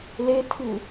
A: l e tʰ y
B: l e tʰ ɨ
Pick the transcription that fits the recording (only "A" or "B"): B